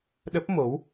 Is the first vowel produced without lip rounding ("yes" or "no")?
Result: yes